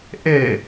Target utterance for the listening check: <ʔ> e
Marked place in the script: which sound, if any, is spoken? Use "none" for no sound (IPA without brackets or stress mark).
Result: ʔ